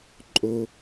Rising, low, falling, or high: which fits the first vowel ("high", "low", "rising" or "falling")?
high